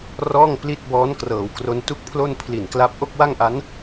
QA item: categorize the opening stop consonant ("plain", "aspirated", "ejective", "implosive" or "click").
plain